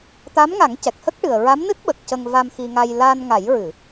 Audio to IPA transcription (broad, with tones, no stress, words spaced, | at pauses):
t̪a˧˥mŋa˨˩˦ŋcɛ˨˩k̚hə˦˥k̚ ʈɨ˨˩ə̯ ɹa˧˥mnɨ˦˥t̚ɓə˨˩k̚ cə˧ŋva˧mxi˧ŋa˧j la˧nŋa˨˩˦jɹɨ˨˩˨